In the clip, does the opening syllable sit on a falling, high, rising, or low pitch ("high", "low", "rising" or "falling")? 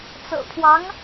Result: low